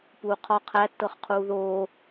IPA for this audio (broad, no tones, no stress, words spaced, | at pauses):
puːqʰɒ qʰætːɤχ qʰuːðoː